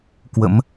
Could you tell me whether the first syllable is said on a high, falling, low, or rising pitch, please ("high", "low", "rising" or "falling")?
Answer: rising